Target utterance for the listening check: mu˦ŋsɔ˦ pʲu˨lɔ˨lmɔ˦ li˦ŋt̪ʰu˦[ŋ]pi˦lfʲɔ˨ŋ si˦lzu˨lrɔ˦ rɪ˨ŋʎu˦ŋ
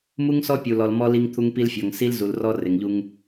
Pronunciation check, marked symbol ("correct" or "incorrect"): correct